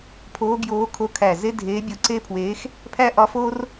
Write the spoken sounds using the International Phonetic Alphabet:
pʰ oː˧˥ ɡ j oː˧˥ kʰ o˧˥ kʰ æ˧˩ z e˥ dʱ eː˧˥ bʲ o˧˥ ǀ e˥ pʰ w eː˧˥ x | pʰ æ˥ ʔ ɒ˧˥ f oː˥ r

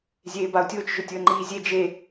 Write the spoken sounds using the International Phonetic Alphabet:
zʲ eː b a ʊ̯ tʲ ʊː t͡ʃ ʒ ʊ tʲ ʊ ə̯ ŋ͡ǃ iː zʲ e d͡ʒ e

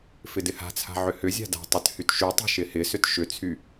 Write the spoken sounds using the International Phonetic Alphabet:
f ɪ d ɪ h a̤ t͡sʰ a̤ ʕ ʏ h ʏ zʲ a̤ d a̤ tˤ ʏ t h y t ʃ y tˤ i̤ ʃ ɪ h ɪ s ʏ t ʃ ʏ t͡sʰ y

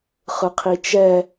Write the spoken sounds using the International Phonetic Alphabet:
χ ɯ qʰ i t͡ʃ ɛ

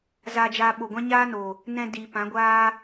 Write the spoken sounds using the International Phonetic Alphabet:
z aː˧ d͡ʒ aː˧ ɓ o˨ ɡʷ ã˦ ɲ aː˦ n o˨ | n ɛ̃˧ d iː˨ p ã˨˦ ɡʷ aː˦

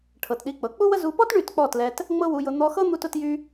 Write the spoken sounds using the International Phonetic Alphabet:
ʈʰ ɤ˨ t ɗ i˧ k͡p ɤ˨ k͡p u˦ w ə˦ z u˧ p ɔ˦ t ɳ y˦˨ t k͡p ɔ˦˨ t l ɛ˧ t | ŋ͡m ɤ˦ w u˧ j ʊ˧ n̪ ɔ˧ x ɤ˦ n̪ u˦ t ʊ˦ t j y˦

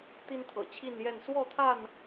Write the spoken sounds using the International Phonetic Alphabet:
t̪ i˦ n t̪ʰ ɤ̰˨˩ t͡ɕʰ i˥˨ n j ɛ˥˨ n s w ɔ˥˨ t̪ʰ a˥˨ n

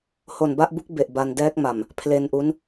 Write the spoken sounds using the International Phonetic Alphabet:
h o˨˩ n b a˥˩ ʔ b u˦˥ k̚ b e˨˩ ʔ b a˧ n d ɛː˦˥ k̚ m a˨˩ m | pʰ l e˧ n ʔ u˦˥ n

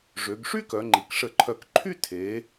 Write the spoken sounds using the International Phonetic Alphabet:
ʐ ø˩˧ ɡ ʂ y˥ k œ˩˧ ŋ͡ǃ i˩˧ k ʂ ə˧˩ ǃʰ œ˧˩ k ǃʰ y˥˧ tʰ e˩˧

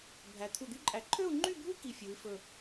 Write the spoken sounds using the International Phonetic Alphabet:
bʱ æ˩˧ t̪ʰ u˧˩ d̪ y˥ ǃʼ æ˧˩ ǃʰ ø˥˧ u̯ ŋ͡ǃ y˥˧ bʱ u˥ k i˧ fʲ u˩˧ i̯ f ɵ˧˩

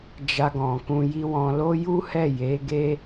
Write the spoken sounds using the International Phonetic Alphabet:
d͡ʒ a˧ ɡ ɔ̃˨ k ũ˧ j i˧ w ɔ̃˨ l o˧ j u˦ h ɛ˦˨ j e˨˦ ɡ e˦

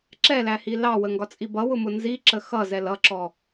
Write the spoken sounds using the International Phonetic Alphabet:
ǁ ɛ l æ h i l ɑ w ə ŋ ɡ ɒ t͡sʼ i b ʌ w ʊ m ʊ n z i ǁ ə x ʌ z ɛ l ʌ ǁ ɔ

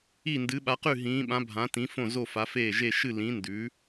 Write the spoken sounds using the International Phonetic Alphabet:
i˧˩ n d ɨ˩˧ ɓ a˩˧ q ʉ˧˩ ɦ ĩː˩˧ ɓ ã˩˧ bʱ ã˩˧ t ĩ˩˧ f õ˧˩ z o˧˩ f a˩˧ f eː˧˩ ʒ e˧˩ ʃ ɨ˧˩ l ĩ˩˧ n d ʉ˩˧

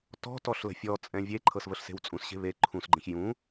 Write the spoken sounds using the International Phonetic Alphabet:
t ɔ̤ t ɔ ɬ l ə̤ fʲ ɔ t͡sʼ ɛ̃ vʲ e ǃʰ ɤ s v ə ɬ s e̤ w t͡sʼ ũ s ɕ e̤ β e ǃʰ ũ s ɡ͡ǃ ə̃ ç j ũ

